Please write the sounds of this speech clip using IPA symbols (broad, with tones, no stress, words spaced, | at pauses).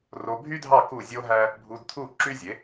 ro˧bʱy˥dʱɑ˥˩ ku˥˩zʲo˥ɦæ˥ | bʱu˧dt̪ʰu˥˩ ǁy˥zʲe˩˥